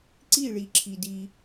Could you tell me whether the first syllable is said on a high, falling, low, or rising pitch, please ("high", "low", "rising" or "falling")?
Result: falling